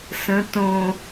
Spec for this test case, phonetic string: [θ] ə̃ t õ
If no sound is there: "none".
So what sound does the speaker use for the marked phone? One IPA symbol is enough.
s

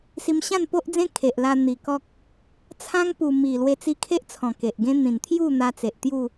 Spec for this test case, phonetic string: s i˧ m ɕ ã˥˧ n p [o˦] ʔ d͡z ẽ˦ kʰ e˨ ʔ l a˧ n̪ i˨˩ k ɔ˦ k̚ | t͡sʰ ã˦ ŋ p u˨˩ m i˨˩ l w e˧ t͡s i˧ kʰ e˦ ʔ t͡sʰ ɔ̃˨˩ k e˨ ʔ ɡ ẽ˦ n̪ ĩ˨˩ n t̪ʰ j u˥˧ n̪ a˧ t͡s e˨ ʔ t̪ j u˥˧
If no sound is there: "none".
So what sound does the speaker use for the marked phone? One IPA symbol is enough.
o˦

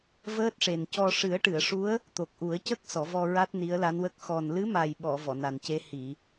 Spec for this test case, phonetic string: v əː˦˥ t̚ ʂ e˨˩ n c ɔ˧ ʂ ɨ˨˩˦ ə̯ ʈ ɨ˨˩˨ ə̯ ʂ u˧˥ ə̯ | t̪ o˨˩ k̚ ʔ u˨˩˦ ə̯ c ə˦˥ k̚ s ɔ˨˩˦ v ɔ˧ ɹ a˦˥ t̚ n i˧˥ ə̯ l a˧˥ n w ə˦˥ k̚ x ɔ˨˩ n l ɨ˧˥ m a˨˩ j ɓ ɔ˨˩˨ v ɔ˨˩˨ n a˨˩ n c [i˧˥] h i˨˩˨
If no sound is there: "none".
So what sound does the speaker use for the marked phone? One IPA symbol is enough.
e˧˥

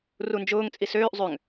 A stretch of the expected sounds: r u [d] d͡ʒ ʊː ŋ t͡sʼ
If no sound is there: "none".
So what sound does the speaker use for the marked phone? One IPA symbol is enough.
n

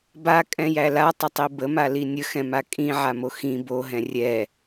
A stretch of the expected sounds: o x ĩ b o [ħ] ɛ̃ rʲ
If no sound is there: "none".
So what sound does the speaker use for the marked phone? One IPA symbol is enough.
ɦ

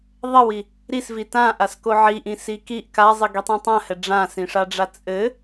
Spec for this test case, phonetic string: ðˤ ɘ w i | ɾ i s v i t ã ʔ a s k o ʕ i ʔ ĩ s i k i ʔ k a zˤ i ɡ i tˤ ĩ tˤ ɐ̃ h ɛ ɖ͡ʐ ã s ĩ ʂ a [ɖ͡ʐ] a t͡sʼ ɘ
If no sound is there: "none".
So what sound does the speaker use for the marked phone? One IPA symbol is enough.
ɖ͡ʐ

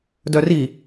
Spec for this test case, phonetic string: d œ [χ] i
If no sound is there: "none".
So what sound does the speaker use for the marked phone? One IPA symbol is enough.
r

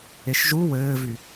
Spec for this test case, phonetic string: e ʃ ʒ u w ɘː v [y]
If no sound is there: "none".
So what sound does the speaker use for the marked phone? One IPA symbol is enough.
y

